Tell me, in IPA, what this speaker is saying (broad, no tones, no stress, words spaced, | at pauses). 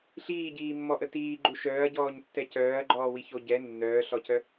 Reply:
ɬiːɟiːmːɔʔə tiːɡ͡ǃu ʃœːɐ̯ɟɔːɲtːɛ cœːɐ̯ɡ͡ǃɔːwiço ɟɛ nːœːɬɔcœ